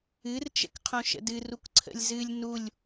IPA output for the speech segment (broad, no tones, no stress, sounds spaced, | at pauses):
ɨ r t͡ʃ ə̰ k qʰ õ ʃ ə̰ d ɨ r u k ǀʰ ə̰ lʲ z ɨ lʲ n u lʲ